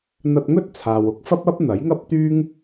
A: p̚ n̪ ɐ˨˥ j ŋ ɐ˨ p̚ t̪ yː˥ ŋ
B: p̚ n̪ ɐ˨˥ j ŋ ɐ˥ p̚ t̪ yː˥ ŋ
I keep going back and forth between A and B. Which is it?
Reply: B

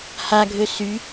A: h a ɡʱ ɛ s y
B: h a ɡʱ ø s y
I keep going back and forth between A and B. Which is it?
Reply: B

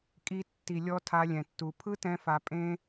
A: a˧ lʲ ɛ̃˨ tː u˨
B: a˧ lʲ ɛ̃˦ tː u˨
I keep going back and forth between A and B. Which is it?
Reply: A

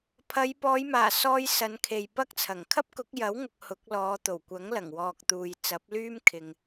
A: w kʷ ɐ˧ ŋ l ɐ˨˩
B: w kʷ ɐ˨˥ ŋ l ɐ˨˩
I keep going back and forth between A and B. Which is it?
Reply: B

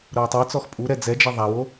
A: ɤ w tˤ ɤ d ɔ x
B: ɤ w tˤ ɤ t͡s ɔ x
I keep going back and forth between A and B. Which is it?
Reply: B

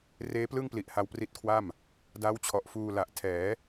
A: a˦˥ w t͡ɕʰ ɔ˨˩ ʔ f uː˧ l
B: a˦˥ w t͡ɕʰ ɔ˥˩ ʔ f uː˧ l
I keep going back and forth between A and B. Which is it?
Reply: A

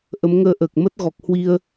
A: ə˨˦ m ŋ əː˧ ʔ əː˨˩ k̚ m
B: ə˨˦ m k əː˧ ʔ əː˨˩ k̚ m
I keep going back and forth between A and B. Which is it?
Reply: A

